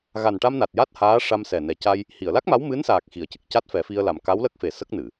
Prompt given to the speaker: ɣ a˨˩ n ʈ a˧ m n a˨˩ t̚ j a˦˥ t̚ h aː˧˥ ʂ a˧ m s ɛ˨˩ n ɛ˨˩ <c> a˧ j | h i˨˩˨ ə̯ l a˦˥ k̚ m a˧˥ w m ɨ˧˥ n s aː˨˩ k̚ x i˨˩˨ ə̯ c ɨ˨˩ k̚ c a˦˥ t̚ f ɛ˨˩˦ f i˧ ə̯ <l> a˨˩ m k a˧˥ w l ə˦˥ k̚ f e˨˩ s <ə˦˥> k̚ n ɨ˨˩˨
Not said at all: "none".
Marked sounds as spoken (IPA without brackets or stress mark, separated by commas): c, l, ə˦˥